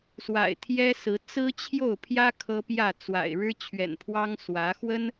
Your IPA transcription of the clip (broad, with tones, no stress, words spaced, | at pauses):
swa̰˨˩ɪ̯t̪ʰjɛ˦sɹ̩˨˦ t͡sɹ̩˦t͡ɕʰjo˥˨ʊ̯pʰjä˦ kʰɤ˦pjä˥˨t͡swa̰˨˩ɪ̯ ɻɻ̩˦t͡ɕʰɥɛ̰˨˩npʰwɑ˦ŋswä˨˦ xwə˦n